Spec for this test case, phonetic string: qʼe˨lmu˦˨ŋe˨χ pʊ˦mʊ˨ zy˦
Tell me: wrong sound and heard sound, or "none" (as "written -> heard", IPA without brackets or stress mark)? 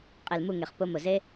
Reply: y˦ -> e˦